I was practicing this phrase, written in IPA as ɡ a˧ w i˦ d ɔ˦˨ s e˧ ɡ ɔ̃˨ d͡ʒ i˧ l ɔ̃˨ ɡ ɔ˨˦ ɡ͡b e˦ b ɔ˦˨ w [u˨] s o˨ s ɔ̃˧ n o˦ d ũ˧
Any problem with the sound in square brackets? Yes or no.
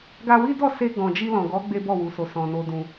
no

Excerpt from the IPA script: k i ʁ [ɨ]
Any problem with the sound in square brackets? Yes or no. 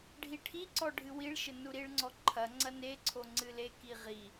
yes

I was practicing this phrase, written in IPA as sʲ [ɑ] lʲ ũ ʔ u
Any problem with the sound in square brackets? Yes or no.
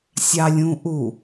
no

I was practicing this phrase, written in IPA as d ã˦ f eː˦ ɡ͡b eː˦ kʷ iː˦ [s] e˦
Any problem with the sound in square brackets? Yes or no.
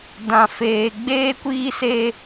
no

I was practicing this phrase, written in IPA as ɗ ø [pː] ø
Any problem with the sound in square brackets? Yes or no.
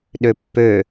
no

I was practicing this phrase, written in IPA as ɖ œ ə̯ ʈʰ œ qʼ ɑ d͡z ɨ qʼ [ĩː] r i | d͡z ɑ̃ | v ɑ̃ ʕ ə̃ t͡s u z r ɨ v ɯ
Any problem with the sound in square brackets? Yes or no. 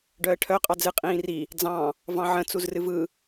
no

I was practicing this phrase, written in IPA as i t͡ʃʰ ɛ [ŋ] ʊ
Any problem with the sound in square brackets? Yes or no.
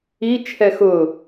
yes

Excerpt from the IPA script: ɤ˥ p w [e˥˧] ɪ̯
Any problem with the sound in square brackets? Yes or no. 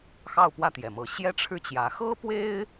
yes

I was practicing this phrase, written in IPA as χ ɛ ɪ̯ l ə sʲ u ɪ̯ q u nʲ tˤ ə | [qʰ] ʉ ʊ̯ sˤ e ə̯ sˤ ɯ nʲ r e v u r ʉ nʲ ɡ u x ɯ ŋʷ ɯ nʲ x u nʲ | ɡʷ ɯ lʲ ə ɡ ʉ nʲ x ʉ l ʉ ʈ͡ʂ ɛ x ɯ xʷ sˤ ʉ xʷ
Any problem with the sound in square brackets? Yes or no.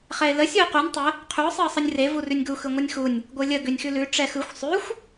no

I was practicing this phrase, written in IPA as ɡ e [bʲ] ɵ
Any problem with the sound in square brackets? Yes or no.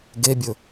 no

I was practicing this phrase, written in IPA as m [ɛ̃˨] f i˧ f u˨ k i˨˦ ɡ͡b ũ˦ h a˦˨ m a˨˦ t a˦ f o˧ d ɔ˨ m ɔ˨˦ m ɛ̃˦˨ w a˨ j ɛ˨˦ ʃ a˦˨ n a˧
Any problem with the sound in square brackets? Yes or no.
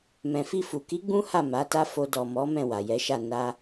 no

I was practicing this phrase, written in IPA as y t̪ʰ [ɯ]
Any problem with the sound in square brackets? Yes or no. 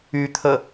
yes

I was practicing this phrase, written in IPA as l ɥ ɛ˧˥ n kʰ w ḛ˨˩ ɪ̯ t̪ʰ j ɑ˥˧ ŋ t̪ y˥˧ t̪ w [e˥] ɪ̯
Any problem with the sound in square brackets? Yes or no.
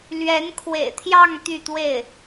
yes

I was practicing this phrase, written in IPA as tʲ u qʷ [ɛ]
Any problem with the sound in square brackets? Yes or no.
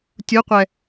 no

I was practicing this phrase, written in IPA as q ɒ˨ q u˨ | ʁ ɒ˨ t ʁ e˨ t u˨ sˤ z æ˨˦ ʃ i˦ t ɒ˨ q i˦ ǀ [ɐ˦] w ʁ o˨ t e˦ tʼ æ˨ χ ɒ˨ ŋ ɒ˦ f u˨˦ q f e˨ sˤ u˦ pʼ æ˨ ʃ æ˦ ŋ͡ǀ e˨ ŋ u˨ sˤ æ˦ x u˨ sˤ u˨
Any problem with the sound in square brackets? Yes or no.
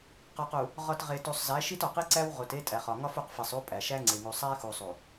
yes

